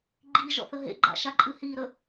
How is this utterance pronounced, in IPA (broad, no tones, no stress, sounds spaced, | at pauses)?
ɡ͡ǃ i ʒ ɔ̰ θ ə ɦ ḛ ɡ͡ǃ a̰ ʃ a ǃʼ ɨ h i ɾ ə